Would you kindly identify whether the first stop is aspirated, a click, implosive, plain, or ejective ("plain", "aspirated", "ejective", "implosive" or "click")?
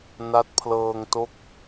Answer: plain